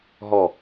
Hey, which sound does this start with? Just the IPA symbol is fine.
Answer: ɦ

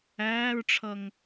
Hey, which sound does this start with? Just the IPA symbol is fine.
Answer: æː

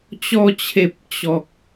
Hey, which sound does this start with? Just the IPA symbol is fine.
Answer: t͡ɕ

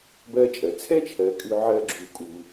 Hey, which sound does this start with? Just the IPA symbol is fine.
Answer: b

